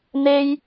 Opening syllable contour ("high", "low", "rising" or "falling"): high